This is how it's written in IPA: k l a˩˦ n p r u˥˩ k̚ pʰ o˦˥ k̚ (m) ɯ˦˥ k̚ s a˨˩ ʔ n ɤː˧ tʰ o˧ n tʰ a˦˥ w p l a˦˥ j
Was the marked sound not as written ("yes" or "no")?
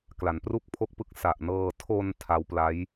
yes